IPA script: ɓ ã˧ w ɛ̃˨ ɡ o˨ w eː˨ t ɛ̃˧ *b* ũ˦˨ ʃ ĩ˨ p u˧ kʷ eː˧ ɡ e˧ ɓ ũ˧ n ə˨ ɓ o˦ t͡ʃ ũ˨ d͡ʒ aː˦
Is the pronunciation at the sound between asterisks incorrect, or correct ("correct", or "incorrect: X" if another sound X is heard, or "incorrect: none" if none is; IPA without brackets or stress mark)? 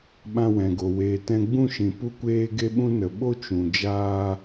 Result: incorrect: ɡ͡b